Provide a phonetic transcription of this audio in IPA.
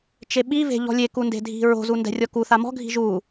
t͡ʃeɓive̤ ʎɔ̤lʲeku nde̤dʱi̤ɹo̤zu ndɛ̤rʲɔkuθa mɔ̤ɡʱi̤ ʒu

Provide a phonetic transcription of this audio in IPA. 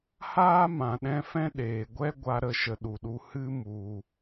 haː˦ mã˨ɗɛ̃˧fɛ̃˦ ɗeː˨ ɡʷɛ˦ɡʷa˧ ɾə˦˨ʃə˧ɗu˨ɗu˧ hɨ˦ mu˧

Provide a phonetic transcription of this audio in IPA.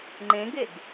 ŋ͡ǃẽɡeɡ

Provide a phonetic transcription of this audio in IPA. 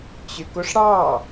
t͡ɕøk oʂɽɑ

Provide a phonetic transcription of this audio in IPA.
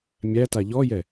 mʲæta ʎɔjɛ

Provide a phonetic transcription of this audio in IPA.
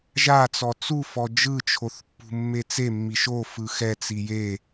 ʒat͡sɔ t͡su fɔd͡ʒɯt͡ʃʰoθpːṳ mːet͡semːi ʃo fɯxɛ t͡sije

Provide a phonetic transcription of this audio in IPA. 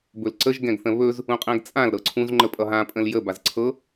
bɵlǀəʒɡɛ̃ɡθə̃ βɵz | ũqʼɛ̃ɡt͡sʼãl ɾɤǀʰũzŋ͡ǃə pʼʌɦãpʼə̃l jə bazǀʰɤ

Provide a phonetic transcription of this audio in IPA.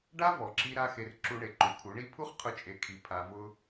ɖa˦ vɔ˨ǁi˧ ɾa˦xe˧r ǁu˧ɳe˨ ǃu˨kʰu˨˦ɳi˦ pʰu˦χqʰʊ˧t͡ʃʼe˨kʰi˨ pʰa˨vʊ˧

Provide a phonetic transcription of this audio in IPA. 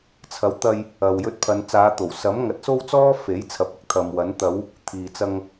t͡sʰɐ˨˥wt̪ɐ˧j | ɐ˨wjɵ˧t̚pʰɐ˨˧n t͡saː˨˧t̪o˨˩wsɐ˨˥m ŋɐ˨˥t̚so˥wt͡sɔː˥ fe˨˥jt͡sʰɐ˨˥p̚ ɪ˨˥k̚t̪ʰɐ˨mwɐ˨˥n t̪ɐ˨˧w | t̪ʰiː˨t͡sɐ˧ŋ

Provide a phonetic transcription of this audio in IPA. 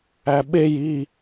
æɓej i

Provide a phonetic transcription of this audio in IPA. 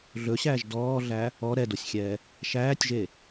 ɮɵɕæːʒ dɔːɮæ | ɔ ɾɛdosʲxʲɛː | ʃæːtʲʒe

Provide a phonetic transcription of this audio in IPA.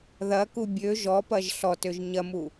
ðɐku bʲø ʒɔpɐʒ ɬɔtøʒ ɲɐmu

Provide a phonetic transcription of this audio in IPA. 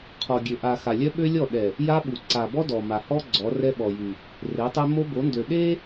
qʰɔ˨ɡʲø˨ ʔa˨ xa˨lʲœ˦ɓø˦lʲɔ˦˨ ɗɛ˨ | ja˦ɓu˨ ǀa˨bɔ˦ dɔ˨ma˨ hɔ˦ ɡ͡ǀɔ˨˦rɛ˦ɓɔ˨jy˨ | re˨˦tˤe˦ mo˦bo˨˦ndø˨ ɗe˦

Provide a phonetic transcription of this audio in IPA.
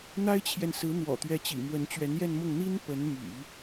n̪a˥ɪ̯t͡ɕʰjɛ˨nsɹ̩˧˥ n̪wɔ̰˨˩t̪ɥɛ˧˥t͡ɕḭ˨˩mwə˧˥n t͡ɕɥɛ˧˥njɛ˥˧nmʊ˥˩ŋ n̪i˥n pə˧˥nmy̰˨˩˦

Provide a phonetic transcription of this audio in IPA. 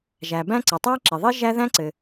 ʒæ˩ bæ̃˥ ǀɘ˩tˤæ˥ǁi˩ðˤi˥ ʒæ˥ðæ̃˥ǀɘ˩

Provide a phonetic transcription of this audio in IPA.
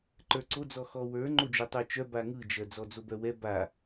ǃə˞ǀod͡zɔ xɔwə˞ ŋ͡ǃod͡ʒotˤə˞t͡ʃœ baŋɯd͡ʒɜ d͡zɔd͡zobœwɛ ba

